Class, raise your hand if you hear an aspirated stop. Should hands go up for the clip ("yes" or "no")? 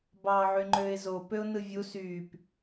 no